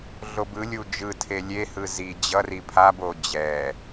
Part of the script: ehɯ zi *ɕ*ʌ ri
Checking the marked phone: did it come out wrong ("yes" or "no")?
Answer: yes